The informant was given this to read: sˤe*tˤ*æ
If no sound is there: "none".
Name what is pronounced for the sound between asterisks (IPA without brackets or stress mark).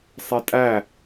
tʼ